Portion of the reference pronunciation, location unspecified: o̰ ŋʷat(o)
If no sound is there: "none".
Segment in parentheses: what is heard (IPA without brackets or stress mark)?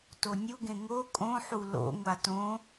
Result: õ